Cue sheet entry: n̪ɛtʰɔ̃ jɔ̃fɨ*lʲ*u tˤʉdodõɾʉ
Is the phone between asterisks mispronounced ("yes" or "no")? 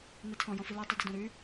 yes